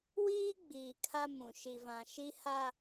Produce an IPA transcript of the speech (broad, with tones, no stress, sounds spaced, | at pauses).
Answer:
w iː˦ ɡ͡b iː˨ kʰ a˦ m ũ˨ ʃ i˨ v ã˨ ʃ i˦ h a˦